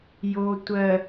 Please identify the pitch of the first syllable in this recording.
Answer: low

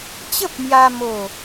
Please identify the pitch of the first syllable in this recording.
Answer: high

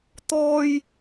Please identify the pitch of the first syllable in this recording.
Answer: high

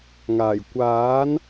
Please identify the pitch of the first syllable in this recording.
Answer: low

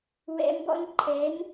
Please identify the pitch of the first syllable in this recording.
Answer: high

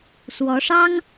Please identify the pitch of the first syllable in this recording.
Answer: rising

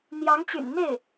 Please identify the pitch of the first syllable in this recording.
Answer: rising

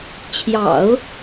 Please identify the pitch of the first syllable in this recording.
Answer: low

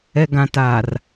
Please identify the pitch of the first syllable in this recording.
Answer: low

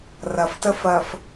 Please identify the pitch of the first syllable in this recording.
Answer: low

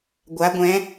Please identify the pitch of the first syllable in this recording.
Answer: rising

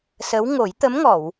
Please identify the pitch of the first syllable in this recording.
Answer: rising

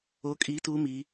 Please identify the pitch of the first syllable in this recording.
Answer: rising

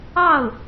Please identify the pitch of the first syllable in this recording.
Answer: falling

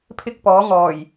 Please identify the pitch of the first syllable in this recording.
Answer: high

